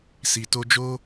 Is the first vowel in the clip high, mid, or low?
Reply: high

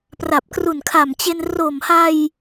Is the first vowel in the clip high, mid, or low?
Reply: low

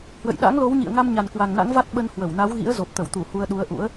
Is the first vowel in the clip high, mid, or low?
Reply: mid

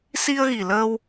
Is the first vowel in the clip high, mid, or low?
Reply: high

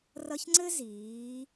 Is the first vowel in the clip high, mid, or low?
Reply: mid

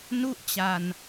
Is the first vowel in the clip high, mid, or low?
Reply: high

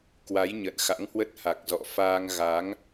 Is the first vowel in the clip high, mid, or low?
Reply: low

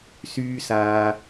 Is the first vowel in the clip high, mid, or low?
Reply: high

